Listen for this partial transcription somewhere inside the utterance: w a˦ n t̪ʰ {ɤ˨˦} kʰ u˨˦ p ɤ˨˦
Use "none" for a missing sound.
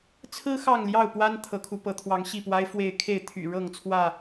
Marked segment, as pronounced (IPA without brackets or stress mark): ɤ˨˦